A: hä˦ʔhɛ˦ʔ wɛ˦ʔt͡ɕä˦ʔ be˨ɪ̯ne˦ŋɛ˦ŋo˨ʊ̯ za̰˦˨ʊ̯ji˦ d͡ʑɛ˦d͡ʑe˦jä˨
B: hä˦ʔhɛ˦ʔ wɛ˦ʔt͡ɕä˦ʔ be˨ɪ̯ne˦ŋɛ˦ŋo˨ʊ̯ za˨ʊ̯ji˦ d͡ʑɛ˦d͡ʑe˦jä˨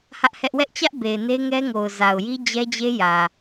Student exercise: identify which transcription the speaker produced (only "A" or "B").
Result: B